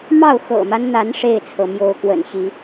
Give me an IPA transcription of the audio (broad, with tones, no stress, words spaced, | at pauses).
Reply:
mɑ˥˨ʊ̯xɤ̰˨˩ma˦nn̪a˨˦n ʂe˥˨ɪ̯t͡sʰɤ˩mjo˨˦ʊ̯kwə̰˨˩n ɕi˨˦